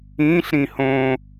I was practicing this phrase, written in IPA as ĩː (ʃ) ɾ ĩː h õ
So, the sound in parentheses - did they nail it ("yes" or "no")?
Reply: no